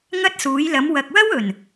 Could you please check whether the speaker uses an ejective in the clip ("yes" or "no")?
no